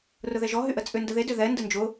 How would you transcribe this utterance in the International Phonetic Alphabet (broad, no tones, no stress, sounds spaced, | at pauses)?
r ʊ ð ɛ ʒ ɔ ɦ y ʔ ə t͡sʼ ʏ n d ə ð e d ʏ ð ɛ n d ə n d͡ʒ ʊ